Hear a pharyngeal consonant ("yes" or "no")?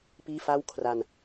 no